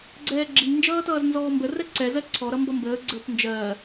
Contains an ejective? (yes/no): no